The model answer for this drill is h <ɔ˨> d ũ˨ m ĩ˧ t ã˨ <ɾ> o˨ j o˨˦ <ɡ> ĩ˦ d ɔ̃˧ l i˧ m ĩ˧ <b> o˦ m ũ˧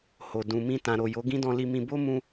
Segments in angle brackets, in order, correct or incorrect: incorrect: o˨, correct, correct, correct

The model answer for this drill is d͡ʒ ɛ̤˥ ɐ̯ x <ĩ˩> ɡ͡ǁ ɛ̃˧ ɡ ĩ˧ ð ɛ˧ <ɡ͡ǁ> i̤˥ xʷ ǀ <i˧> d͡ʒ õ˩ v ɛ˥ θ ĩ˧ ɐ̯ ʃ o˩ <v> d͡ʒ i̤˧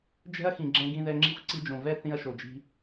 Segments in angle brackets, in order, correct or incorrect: correct, incorrect: ŋ͡ǁ, correct, incorrect: none

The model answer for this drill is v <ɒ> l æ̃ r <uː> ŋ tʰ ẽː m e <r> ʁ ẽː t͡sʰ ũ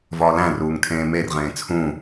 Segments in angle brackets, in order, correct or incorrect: incorrect: ɒː, correct, correct

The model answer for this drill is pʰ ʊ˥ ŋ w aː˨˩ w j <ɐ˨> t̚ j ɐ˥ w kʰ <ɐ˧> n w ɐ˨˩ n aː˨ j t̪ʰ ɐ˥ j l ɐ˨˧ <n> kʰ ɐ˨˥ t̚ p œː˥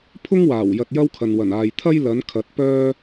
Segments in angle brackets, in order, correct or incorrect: incorrect: ɐ˧, incorrect: ɐ˨, correct

